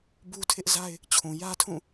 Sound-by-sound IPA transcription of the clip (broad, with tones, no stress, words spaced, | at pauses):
bu˦tʰɪ˦ʔza˦ɪ̯ | t͡ɕʰũ˨jä˦tʰũ˦˨